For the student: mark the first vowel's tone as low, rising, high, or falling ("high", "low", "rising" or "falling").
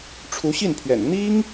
rising